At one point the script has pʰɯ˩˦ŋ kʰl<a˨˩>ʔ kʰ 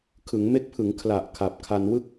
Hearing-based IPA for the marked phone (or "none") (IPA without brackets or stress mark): a˨˩